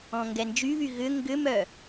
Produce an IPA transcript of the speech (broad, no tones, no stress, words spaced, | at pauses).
ɔ̃ŋɡɛnd͡ʒyβy ɣʏ ŋɡʏmœ